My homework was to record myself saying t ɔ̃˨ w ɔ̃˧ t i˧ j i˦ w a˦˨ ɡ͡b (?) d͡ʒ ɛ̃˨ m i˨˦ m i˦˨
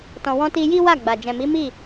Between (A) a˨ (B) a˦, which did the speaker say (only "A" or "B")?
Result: A